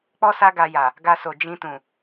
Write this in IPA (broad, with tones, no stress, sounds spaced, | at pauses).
k͡p ɔ˦ s a˦ ɡ a˧ j a˨ | ɡ a˧ s o˨ d͡ʒ ĩ˧ t ũ˨